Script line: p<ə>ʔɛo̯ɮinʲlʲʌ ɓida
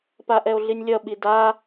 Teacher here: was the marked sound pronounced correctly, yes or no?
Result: no